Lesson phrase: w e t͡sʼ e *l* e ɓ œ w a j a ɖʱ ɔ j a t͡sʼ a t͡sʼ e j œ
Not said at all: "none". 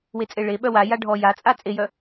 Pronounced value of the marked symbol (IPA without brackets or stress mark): ɭ